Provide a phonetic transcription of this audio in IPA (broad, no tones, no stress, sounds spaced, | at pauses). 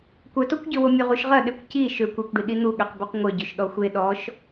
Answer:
kʷ œ t o kʷ ɟ ø w o mʲ o ʁ u ʃ ʁ ɐ ɗ e kʷ c i ʃ ø kʷ e kʷ ɖ i ɗ i n̪ u ɠ ø q b u q ŋʷ œ ɟ ø ʃ ɗ ɔ xʷ e ɗ ɔ ʃ